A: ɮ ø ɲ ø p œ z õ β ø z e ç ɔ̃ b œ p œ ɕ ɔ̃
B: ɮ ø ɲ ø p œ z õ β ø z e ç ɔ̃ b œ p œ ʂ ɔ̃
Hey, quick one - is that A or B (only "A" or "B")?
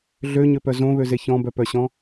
A